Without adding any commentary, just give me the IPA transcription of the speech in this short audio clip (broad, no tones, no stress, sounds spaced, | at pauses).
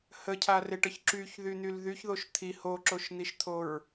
h ə cʰ a r e ʈ ə ç ǁ y ç ð y n̪ y l ð y ç ð o ʃ t̪ʰ i h o ǁ o ʃ n̪ i ʃ t̪ʰ o ɹ